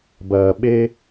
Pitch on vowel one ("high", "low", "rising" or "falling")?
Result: low